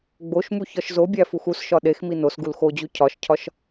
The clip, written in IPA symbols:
ɡ͡boʃmu çɒʃzobʲæ fuxusʃɒ ɗexmi nos ɡulxod͡ʑu cʰɒʃcʰɒʃ

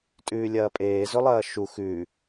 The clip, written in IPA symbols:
tʼʉːlʲɐːpʼeː zɵlˠɐːʃu xʉ

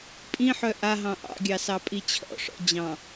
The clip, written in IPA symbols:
pʼĩħœ ʔaɦɑ̃ ʔɑ̰ɡʲɑ sɑpʼit͡ɕʰɔ̰ʂɔ̰ d͡ʑɑ̃

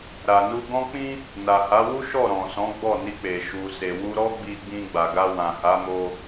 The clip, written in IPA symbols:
ɾa˨nu˧ɡɔ̃˦k͡pĩ˦ | na˨ha˨˦wu˦ ʃɔ˦˨ɾɔ̃˨sɔ̃˨˦ ɡ͡bɔ˦˨ni˧k͡pe˨ ʃu˨se˨wu˧ ɾɔ˦ɡ͡bi˧ ɡ͡bĩ˧ɡ͡ba˨ɡa˧ wã˨ha˨˦mo˧

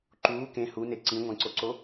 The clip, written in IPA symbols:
ǃuː kẽ hune ǀĩŋʷæ̃ǀoǀo

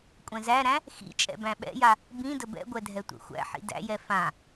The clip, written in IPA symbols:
kʷʼɛ̃zæɾæ̃ | xḭ t͡ʃʼɛ̰bæ̃ɓɛ̰ja | bĩ dəbɛ̰ɡʷɛ dʱɛtʷɛ̰xʷæ̰ħḭ dæ̰jɛ fã

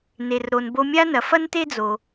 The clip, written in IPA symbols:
ne˩rɾo˩n bo˨mʲa˦nɐ˩ fɐ˦nte˦d͡zo˩

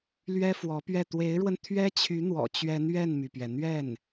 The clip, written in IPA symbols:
lɥɛ˥fwɔ˧˥pɥɛ˥˩ t̪we˧˥ɪ̯ɻwə˧n t̪ʰɥɛ˥t͡ɕʰy˧˥n̪wɔ̰˨˩ t͡ɕɥɛ˧˥n ɥɛ˥˩nmy˩pɥɛ˩ n̪ɥɛ˥˩n

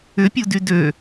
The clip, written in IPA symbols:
ʏpʲudy dø

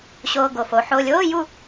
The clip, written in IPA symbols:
ɕoː˨ ɡo˨fo˨˦ħo˧˥˧ lʲoː˧˥˧ju˥˨

